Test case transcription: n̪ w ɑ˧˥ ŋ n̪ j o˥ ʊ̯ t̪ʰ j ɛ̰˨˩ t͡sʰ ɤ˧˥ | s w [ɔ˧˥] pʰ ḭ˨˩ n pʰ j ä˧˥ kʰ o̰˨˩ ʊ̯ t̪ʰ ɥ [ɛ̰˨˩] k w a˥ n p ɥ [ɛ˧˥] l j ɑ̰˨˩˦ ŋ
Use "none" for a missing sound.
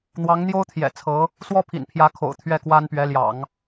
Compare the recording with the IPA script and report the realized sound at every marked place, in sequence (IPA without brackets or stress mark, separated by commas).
ɔ˥, ɛ˥˩, ɛ˧˥